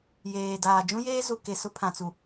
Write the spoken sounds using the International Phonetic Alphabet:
jeː˨daː˨ d͡ʒũ˦jeː˦zu˨ ke˨sʊ˦pʰã˨ t͡su˨

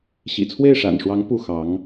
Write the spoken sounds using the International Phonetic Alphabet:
ɕḭ˨˩t͡sʰwe˥˩ɪ̯ʂa̰˨˩nʂwɑ˧˥ŋ pu˥˩ xɑ˧˥ŋ

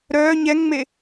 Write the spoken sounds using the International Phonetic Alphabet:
ɾœː ɲɛŋŋ͡me

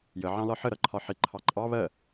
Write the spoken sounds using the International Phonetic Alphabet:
jə ʕɑ̃lɒħə ɾʌǃʰɒħɪ ǃʰɑǃʼɑ βɜ

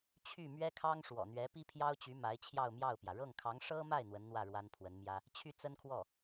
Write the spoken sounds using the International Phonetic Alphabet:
t͡ɕʰy˥˩ mɥɛ˥kʰɑ˥ŋʂwɔ̰˨˩n̪ɥɛ˧˥ pi˥pʰjɑ˥ʊ̯t͡ɕy˧˥ ma˧˥ɪ̯t͡ɕʰjɑ˥˧ʊ̯mjɑ˥˩ʊ̯pjä˩ ɻɤ˥˩ŋkʰɑ˧˥ŋ ʂɤ˥ma˥˩ɪ̯ n̪wə˧˥nn̪wä˥˩ ɻwa˥npʰwə˧˥nmjä˥ | t͡ɕʰy˥t͡sə˥nkʰwɔ˥˩

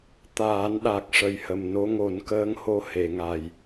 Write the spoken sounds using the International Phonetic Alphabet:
t̪aː˨˩˦nɗa˨˩k̚ ʂə˨˩jhə˨˩mno˧˥ ŋo˨˩˦nkəː˧ŋho˧ he˨˩˨ŋa˨˩j

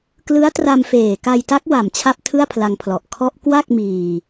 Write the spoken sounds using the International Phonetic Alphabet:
klɯ˦˥a̯tra˧mfeː˨˩ka˧j ta˦˥k̚wa˨˩m t͡ɕʰa˥˩p̚tʰɯ˥˩a̯pʰla˧ŋpʰlɔ˨˩ʔ kʰɔ˦˥ʔkwa˥˩k̚ miː˨˩

